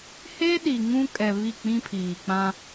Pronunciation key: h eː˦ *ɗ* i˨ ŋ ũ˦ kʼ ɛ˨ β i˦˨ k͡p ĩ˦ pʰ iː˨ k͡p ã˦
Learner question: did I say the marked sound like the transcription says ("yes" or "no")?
yes